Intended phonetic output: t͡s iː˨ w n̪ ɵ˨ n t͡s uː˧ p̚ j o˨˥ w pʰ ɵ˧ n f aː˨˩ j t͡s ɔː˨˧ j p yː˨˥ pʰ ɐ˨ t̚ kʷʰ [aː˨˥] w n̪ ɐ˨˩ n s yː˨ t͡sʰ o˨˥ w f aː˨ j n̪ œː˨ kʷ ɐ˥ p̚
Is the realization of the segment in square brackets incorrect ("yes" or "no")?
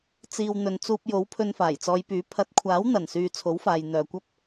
no